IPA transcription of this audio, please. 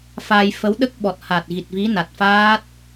f a˧ j f ə˧˥ w ɗ ə˦˥ k̚ ɓ ɔ˨˩ t̚ h a˨˩ t̚ ɣ i˨˩ t̚ v i˧˥ n a˨˩ t̚ f aː˦˥ t̚

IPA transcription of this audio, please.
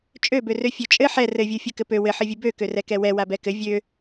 t͡ʃʼ ø b ø r ø fʲ ø t͡ʃʼ ɘ ħ ɛ r ɘ vʲ u fʲ u k ɘ p ø w ɘ ħ ɘ vʲ ɘ b ø k ø r ɛ k ɛ w ɛ w a b ɛ k ɘ vʲ ø

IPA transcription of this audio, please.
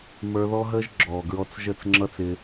m ə˞˧ ð ɔ˦ ɦ əː˦ ʒ ɡ͡ǁ ɔː˨ ɡ ɹ ɔ˧ t͡s ʒ ə˦˨ t͡s ŋ͡ǁ ʌ˦ t͡s ɪː˧

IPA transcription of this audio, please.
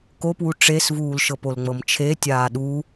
k o p w u ʈ͡ʂ e s v uː l ʃ ɤ p o l ŋ͡m ɤ m t͡ʃʰ e tʲ aː ɗ u

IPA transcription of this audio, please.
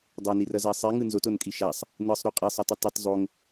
dˤ o n i r ʌ z a sˤ i ŋ ɯ n z o t o n kʼ i ʃ a sˤ | n ɯ sˤ ɾ u qʼ i sˤ ɯ tˤ ɯ tˤ i t zˤ o ŋ

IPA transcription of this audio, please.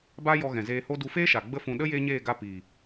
b a˦ j ɔ˧ ɣ ɛ̃˨ z eː˧ h o˦ d u˧ f eː˦ ʃ a˨ ɡ͡b ə˦ f ũ˧ ɗ ə˦ j eː˦ ɲ eː˦˨ ɡ a˧ p iː˨

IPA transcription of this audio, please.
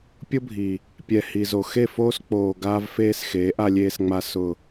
pʲ ʊ˦ bʱ i˨ | pʲ ɛ˨ h i˨ z o˨ x e˦˨ f oː˦ s k͡p oː˨ ɡ aː˦ v f eː˦ s x eː˨˦ ʔ a˨ lʲ eː˨ s ŋ͡m a˨ s ʊ˨

